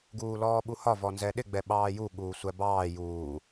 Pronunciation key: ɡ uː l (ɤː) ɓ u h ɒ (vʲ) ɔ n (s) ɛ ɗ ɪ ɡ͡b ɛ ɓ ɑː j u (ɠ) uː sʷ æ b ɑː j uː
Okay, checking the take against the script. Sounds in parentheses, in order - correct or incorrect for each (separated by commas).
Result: incorrect, incorrect, incorrect, correct